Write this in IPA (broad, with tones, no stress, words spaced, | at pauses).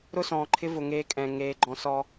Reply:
ɾʊ˦˨sɔ̃ː˨ǃʰɪ˦ vʊ˨ŋeː˦kʼɛ̃˨ ŋeː˦ɡ͡ǃɔ̃˦ sɔː˦